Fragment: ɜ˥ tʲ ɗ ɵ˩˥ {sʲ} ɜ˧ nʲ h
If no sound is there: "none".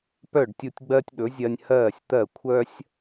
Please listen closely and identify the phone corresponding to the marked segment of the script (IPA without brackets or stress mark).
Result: zʲ